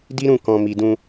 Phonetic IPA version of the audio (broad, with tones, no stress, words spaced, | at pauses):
di˦ɾũ˦˨ kɔ̃˨ mi˨dũ˧